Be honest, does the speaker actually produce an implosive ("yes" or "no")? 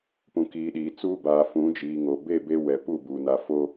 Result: yes